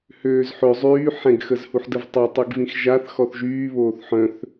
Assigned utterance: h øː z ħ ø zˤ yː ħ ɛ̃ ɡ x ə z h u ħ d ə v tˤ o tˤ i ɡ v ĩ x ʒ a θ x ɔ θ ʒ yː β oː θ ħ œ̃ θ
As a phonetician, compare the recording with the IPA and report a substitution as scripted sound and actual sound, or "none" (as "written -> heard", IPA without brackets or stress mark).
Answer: none